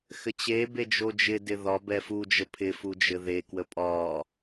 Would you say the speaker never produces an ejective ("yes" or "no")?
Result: no